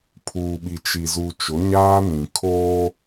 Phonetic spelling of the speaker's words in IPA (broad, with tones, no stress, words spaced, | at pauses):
pʰuː˨ɓi˨t͡ʃi˨ zu˨t͡ʃʊ˨˦ɲaː˦nĩ˨ kʰoː˦